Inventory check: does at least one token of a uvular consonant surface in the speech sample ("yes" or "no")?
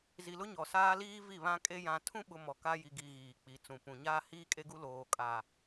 no